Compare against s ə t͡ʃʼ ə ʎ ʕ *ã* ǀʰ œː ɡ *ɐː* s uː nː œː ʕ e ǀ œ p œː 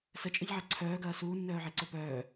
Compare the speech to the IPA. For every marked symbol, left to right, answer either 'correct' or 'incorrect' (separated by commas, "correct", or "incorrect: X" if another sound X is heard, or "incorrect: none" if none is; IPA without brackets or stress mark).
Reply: incorrect: a, correct